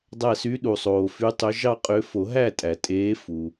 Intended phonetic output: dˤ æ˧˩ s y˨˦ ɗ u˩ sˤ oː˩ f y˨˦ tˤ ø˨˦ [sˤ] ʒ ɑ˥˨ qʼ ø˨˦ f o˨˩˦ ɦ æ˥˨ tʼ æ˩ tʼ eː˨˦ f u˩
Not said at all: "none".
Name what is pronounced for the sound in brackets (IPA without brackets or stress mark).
none